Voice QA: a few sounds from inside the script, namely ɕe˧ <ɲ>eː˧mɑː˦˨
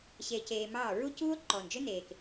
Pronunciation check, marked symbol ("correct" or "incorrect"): incorrect